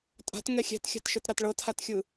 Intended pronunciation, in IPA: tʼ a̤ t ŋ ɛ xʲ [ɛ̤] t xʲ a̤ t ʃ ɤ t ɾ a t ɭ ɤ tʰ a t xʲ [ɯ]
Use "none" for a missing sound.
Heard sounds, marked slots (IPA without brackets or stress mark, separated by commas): ɛ̤, ɯ